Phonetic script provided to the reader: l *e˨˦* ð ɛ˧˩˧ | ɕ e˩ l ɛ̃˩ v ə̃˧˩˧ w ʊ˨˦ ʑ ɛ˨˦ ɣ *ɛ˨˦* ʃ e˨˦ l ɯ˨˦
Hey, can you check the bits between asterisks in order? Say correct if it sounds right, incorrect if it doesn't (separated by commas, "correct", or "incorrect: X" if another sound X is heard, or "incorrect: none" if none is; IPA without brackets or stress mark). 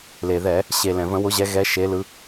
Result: incorrect: e˩, correct